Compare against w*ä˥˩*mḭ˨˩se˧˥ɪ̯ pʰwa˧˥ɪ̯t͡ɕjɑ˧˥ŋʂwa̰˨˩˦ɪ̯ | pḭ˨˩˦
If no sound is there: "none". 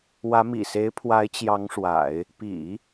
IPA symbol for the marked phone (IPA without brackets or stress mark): ä˧˥